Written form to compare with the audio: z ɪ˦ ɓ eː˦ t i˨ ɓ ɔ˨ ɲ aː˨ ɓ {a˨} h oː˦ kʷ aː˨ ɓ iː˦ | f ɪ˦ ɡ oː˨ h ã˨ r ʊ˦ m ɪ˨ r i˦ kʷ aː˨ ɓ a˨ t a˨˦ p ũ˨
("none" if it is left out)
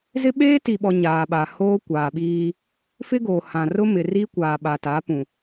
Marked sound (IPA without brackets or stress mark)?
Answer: a˨